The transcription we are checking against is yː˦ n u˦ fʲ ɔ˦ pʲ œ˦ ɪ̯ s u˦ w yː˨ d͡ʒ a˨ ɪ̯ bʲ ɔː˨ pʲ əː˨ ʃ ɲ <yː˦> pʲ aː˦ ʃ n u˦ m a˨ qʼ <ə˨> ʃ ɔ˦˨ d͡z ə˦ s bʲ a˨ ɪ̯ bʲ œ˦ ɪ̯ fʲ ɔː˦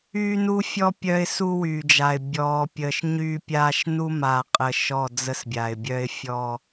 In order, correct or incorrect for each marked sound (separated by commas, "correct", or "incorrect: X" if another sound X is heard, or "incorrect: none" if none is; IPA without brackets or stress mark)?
correct, correct